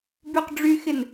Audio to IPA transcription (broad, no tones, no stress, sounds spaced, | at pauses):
b y q ɖ͡ʐ y x ɪ n